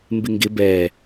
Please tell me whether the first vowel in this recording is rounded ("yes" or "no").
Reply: no